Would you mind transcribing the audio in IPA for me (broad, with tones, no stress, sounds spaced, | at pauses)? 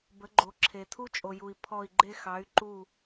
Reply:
b ə˨˥ ɡ͡ǃ o˨ ǁʰ e˨ tʰ u˥ t͡ʃʼ o˨ j u˨ i̯ pʰ ɔ˦˨ i̯ ɡ͡ǃ e˥ x ɑ˨˥ y̯ ǃ u˦˨